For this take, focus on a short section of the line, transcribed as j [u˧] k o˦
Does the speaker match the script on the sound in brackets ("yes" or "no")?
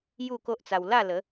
no